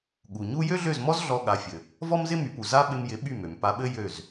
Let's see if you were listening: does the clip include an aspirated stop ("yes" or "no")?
no